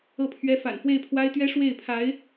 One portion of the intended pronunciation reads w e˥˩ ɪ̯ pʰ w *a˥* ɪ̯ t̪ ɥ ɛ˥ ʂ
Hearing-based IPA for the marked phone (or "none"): a˥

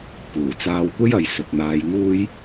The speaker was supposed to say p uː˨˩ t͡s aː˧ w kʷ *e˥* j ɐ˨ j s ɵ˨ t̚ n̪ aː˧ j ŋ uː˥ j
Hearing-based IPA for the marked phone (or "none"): e˥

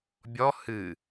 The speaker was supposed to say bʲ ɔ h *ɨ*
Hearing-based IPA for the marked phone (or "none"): ɨ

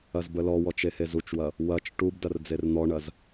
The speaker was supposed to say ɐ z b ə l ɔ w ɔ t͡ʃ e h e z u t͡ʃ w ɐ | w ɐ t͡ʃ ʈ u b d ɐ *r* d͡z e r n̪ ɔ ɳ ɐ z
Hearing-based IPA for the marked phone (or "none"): r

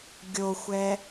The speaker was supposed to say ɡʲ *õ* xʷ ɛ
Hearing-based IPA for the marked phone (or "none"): o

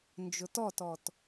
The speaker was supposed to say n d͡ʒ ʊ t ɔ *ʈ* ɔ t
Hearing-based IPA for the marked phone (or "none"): t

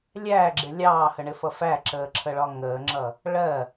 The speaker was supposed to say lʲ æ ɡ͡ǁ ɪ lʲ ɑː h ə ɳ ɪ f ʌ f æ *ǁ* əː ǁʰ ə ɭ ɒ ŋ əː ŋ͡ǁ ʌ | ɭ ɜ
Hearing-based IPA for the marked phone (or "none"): ǁ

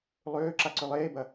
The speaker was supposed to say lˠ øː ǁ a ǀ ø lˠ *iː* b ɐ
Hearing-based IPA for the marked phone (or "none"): eː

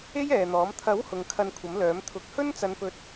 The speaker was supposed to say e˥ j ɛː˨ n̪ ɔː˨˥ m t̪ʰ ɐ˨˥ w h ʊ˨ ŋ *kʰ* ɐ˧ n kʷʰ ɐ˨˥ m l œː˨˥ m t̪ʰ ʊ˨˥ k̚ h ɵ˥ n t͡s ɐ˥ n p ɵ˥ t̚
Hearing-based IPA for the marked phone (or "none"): kʰ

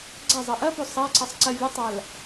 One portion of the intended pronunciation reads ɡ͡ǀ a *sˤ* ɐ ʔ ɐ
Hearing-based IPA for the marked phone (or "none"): zˤ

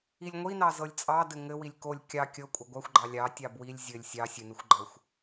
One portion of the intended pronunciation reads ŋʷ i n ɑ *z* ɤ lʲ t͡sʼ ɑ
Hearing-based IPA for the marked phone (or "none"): z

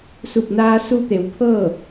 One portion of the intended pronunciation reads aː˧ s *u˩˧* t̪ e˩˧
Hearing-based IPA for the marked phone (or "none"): u˧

